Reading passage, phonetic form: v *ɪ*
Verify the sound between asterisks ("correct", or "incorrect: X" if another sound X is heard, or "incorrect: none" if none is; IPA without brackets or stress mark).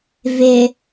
correct